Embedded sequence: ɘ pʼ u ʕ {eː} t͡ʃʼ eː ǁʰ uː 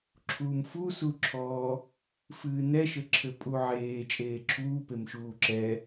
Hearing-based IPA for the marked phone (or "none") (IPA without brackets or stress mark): eː